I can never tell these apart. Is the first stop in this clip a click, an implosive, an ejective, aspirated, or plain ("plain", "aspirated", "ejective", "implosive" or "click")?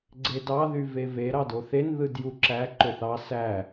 click